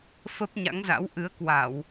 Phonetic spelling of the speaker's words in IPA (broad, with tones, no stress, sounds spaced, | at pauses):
f ə˦˥ p̚ ɲ a̰˧˥ ŋ z a̰˧˥ w ʔ ɨ˨˦ ə̯ k w a˧˩˨ w